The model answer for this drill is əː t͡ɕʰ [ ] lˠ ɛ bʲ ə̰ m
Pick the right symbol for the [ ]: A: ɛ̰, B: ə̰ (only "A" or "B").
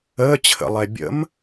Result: B